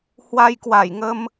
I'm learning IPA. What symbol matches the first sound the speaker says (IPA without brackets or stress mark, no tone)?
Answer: h